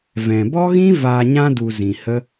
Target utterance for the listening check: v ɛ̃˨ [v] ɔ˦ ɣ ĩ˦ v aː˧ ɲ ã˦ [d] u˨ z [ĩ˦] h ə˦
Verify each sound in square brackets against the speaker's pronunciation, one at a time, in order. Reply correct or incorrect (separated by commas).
incorrect, correct, incorrect